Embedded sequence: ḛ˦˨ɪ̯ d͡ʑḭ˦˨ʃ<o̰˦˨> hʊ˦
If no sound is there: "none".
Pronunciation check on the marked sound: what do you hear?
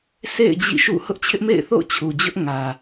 ṵ˦˨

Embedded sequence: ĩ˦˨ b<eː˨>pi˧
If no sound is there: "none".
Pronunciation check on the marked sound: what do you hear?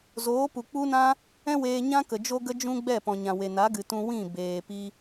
eː˨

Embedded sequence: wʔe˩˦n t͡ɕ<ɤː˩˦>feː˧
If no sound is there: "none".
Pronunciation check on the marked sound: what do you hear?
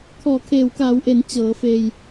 ɤː˩˦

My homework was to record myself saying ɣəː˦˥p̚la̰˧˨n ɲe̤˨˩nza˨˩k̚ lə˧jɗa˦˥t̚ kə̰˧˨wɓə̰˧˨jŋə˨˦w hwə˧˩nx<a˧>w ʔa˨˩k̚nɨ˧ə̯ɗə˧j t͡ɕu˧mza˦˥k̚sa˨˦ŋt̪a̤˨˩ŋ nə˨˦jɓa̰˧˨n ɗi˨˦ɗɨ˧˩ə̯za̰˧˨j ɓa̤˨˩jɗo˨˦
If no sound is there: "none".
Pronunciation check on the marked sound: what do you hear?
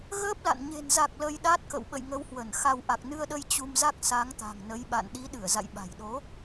a˧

